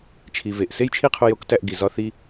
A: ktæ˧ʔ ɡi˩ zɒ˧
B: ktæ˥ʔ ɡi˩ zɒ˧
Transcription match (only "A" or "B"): A